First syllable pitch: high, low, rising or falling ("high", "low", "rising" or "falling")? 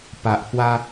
low